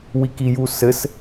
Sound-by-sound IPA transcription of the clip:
w i k i j u s ɘ s

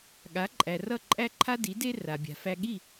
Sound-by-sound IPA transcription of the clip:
ɠ a˩˥ ǃʼ æ˩ r ʌ˥˩ ǃʼ æ˥ ǃʰ a˥ d i˩˥ d e˥ r a˩ bʲ a̤˩ f æ˧ ɠ i˥˩

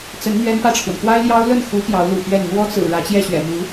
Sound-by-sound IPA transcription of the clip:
t͡s ə˧˥ n n̪ ɥ ɛ˥ n p ä˥˩ ʈ͡ʂʰ w ə˩ n k w a˥ ɪ̯ l j ɑ˥ ʊ̯ l ə˥˩ n x u˧˥ p j ɑ˧˥ ʊ̯ l ṵ˨˩ p ɥ ɛ˥˩ n n̪ w ɔ˥ t͡s ɹ̩˨˩ ɻ ä˧˥ t͡ɕ j ɛ˥˩ ɕ ɥ ɛ̰˨˩ m u˧˥

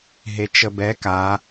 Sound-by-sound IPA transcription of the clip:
ɦ e t͡ʃ ə b ɛ k a

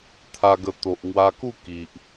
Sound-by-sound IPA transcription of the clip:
t̪ʰ a˧ ɡ ə˧ t̪ o˨ ʔ ŋ w a˧ k u˥˧ k i˨ ʔ

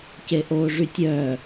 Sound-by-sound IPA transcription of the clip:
c e ʔ oː ʐ y tʲ œː

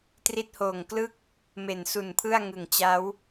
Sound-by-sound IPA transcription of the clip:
t r i˦˥ t̚ h oː˨˩ ŋ k l ɯ˥˩ k̚ | m e˨˩ n s u˨˩ n pʰ ɯ˥˩ a̯ ŋ ɯ˨˩ ŋ t͡ɕ a˦˥ w

